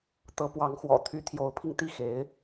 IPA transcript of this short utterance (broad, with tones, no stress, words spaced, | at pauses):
t̪ɤ˧˥pwɑ˧˥ŋxwɔ̰˨˩ t̪ʰy˧˥t̪ʰjo˧˥ʊ̯pʰi˧ŋt̪i˥˩ xe˧˥ɪ̯